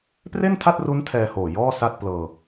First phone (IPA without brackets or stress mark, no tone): p